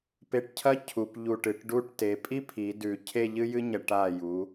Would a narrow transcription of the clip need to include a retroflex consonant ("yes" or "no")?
yes